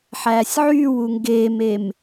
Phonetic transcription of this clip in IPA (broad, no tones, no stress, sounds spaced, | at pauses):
ħ æː sʲ ʕ yː w u ŋ ɡ eː m e m